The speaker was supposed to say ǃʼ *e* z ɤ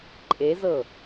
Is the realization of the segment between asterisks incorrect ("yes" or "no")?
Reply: no